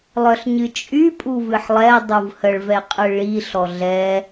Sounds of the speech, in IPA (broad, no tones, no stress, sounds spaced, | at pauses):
lˠ œ ɬ ɲ ɨ t͡ʃʼ y pʼ u v ɨ ħ lˠ ɛ dˤ u v h ə ɭ v ɛ qʼ ɨ ɭ i ɬ ɔ ɮ ɛ